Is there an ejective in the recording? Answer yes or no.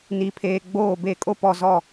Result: yes